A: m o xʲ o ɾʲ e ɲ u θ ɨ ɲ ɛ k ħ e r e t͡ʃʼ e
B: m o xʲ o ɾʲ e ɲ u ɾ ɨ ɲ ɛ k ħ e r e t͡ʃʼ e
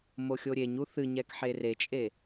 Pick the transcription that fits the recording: A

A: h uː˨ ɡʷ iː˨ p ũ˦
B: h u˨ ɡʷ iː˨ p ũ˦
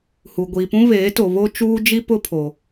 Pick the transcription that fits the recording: B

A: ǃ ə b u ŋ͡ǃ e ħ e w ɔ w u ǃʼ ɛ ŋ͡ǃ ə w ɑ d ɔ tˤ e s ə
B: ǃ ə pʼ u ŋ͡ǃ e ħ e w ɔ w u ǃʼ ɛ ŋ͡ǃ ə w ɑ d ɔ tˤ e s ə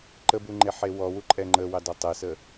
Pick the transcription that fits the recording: A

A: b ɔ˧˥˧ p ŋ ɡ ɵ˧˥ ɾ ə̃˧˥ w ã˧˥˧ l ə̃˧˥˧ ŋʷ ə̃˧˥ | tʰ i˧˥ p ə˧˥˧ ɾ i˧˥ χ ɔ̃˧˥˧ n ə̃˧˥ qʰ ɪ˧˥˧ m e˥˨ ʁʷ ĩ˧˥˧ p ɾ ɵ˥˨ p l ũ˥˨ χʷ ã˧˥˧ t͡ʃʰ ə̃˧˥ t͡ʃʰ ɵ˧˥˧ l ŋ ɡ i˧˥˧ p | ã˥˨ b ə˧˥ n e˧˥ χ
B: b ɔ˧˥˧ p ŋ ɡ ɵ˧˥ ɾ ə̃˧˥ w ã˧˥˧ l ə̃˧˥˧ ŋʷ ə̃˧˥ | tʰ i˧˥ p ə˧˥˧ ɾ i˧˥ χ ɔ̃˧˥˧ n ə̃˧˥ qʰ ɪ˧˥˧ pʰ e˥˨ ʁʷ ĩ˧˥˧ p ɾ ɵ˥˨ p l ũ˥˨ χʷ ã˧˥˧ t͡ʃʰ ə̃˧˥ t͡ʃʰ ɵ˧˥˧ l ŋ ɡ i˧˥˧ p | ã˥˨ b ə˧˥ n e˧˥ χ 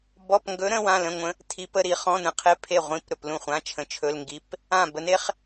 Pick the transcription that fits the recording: B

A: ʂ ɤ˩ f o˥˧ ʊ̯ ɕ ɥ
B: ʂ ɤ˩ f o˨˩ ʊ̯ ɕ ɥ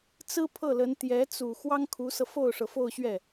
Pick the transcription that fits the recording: A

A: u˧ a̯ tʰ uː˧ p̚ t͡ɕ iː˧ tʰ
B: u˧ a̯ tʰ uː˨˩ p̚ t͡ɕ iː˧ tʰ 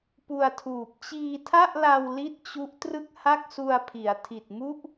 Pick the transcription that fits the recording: B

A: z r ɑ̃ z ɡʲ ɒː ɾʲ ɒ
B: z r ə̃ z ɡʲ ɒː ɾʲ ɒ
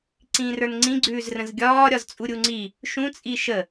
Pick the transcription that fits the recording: B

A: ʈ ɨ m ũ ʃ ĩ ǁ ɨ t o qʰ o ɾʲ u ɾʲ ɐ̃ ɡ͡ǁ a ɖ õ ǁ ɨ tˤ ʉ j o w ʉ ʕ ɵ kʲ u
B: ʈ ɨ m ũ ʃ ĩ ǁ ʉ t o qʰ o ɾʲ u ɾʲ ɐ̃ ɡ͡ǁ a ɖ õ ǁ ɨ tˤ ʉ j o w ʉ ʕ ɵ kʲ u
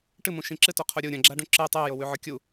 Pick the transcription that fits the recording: A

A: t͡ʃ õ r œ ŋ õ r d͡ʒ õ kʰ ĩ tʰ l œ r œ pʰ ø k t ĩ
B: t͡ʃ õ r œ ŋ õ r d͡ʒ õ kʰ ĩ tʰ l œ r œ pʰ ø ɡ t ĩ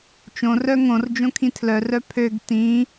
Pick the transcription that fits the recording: B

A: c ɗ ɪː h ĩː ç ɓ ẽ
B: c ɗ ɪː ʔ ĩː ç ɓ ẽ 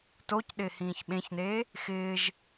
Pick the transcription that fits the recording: A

